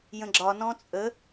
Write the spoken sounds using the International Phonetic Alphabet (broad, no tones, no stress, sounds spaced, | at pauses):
j ə̃ ɡ͡ǁ ɒ n ɔ̃ t͡sʼ ə